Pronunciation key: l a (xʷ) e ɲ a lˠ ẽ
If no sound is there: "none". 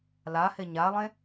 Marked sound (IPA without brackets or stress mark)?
h